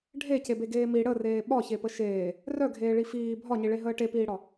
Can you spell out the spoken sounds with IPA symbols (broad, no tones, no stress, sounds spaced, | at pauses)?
ɖʱ e c e b e ɡ eː m i ɽ ə r eː ɓ ɒ ç e p ə ʃ eː | r œ ɡʱ eː ɭ i f iː bʱ ɒ ɲ i ɭ e ɦ əː ʈ e p iː ɽ ɒ